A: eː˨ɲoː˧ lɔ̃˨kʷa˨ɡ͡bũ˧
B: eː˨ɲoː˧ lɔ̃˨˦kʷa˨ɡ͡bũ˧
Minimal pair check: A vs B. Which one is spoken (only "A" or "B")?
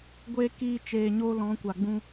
B